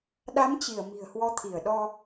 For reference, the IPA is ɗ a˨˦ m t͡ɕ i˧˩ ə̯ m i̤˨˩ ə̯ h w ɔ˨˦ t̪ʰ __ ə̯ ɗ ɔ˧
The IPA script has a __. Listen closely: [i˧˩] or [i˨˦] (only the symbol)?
i˧˩